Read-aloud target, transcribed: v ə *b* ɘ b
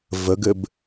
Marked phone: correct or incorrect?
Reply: incorrect